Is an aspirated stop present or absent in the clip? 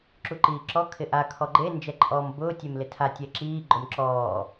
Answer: present